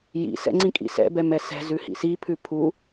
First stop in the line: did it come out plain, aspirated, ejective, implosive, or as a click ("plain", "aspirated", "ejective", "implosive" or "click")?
click